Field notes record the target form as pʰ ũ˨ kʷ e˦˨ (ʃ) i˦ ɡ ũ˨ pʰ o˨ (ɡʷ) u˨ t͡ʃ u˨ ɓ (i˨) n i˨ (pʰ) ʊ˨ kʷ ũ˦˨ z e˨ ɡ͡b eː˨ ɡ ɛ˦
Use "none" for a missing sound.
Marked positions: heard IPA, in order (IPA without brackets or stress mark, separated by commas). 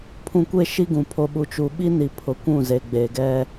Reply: ʃ, ɓ, i˦, pʰ